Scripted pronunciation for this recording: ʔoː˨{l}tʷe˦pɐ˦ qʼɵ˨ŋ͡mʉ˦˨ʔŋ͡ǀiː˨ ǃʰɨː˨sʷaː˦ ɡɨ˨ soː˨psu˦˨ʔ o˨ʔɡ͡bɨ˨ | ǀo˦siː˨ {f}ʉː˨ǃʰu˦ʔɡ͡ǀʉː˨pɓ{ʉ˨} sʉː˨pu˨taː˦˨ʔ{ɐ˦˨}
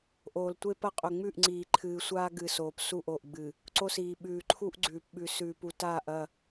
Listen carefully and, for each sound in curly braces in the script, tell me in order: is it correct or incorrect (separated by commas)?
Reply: correct, incorrect, correct, correct